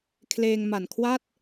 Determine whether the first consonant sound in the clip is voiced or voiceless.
voiceless